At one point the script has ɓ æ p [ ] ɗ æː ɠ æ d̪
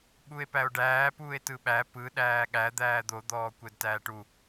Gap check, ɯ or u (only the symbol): ɯ